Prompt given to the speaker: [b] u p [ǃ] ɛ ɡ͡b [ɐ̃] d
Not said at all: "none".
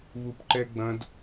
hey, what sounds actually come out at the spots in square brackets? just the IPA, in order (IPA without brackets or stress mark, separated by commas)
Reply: β, ǃ, ɐ̃